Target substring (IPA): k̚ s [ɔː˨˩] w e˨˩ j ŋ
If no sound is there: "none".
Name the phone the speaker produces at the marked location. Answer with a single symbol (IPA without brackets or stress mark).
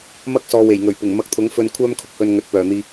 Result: ɔː˨